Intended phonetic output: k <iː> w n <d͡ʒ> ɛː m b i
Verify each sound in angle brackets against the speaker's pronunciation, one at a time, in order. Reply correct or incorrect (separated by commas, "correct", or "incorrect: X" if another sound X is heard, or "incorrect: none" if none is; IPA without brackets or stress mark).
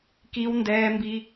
incorrect: i, incorrect: d